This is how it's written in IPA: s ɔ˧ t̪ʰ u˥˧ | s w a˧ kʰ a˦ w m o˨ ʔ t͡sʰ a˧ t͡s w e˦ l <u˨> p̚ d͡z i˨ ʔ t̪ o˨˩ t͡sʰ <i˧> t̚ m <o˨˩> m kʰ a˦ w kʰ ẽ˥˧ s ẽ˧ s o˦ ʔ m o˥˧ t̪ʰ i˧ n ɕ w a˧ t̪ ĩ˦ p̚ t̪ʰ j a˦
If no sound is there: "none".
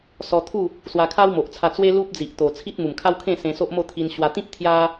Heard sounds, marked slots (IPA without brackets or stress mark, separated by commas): u˦, i˦, u˨˩